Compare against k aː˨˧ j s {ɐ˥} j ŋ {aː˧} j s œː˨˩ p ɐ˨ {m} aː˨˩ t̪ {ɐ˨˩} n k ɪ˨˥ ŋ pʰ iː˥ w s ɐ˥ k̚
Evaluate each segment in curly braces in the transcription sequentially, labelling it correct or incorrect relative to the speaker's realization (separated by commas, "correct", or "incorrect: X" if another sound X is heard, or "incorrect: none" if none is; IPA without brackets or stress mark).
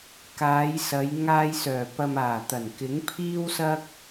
incorrect: ɐ˨˧, correct, correct, correct